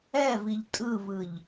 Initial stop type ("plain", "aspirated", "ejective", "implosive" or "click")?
ejective